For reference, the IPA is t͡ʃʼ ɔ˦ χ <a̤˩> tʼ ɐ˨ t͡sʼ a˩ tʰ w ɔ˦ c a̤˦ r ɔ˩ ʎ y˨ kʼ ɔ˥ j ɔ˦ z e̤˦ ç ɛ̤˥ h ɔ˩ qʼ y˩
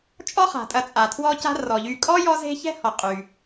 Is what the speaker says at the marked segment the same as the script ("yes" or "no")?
yes